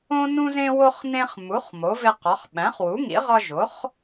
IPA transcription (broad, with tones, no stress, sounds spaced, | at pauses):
õ˦ n ũ˦ z ẽ˦ w o˦ χ n ẽ˦ χ m u˩˥ χ m o˩˥ v e˦ q ɒ˩˥ χ ɓ æ̃˩˥ χ w u˩˥ ŋ ḭ˩˥ ʁ ɒ˦ ʒ o˩˥ χ